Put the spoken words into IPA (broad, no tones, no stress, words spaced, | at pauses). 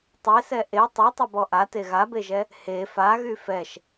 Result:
tˤesɛ ʔe tˤytˤɛbɔ ʔate ɣabeʒɛ | he faɣy fɛʃ